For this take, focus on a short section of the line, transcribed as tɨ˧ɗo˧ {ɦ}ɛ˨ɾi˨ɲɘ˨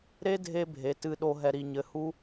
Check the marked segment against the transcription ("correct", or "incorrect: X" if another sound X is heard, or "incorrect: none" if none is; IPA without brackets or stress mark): correct